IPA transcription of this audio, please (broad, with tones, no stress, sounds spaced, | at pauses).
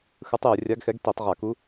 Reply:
x ɯ˧˥ tˤ j ɯ˧˩˧ rʲ a˧˥ ɡ x ɛ˧˥ ɡ t i˧˩˧ tˤ ʁ a˧˩˧ k u˧˥